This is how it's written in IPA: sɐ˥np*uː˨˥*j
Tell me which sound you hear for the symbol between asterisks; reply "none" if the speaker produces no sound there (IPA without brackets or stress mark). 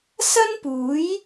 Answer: uː˨˥